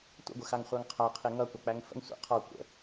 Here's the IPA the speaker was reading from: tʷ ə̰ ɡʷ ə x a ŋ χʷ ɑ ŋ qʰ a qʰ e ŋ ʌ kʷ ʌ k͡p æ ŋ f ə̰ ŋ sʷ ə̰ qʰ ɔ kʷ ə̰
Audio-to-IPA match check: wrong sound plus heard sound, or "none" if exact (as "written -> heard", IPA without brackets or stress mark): none